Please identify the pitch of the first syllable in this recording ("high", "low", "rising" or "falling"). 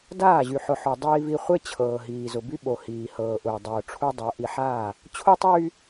falling